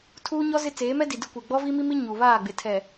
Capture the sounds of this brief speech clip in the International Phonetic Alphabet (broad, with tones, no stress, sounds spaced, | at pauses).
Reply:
tʰ uː˦ ɲ ɔ˦ z ɪ˦ t͡s eː˨˦ m ɛ˦ d i˨ d ɪ˦ kʷ e˨ ɡ͡b ɔ˦ v i˦ m i˦ m i˦ ɲ u˨ β aː˦˨ ɡ͡b ɪ˨ tʰ ɛ˨